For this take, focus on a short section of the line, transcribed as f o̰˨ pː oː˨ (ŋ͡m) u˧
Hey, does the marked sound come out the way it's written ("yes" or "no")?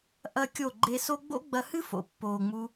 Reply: yes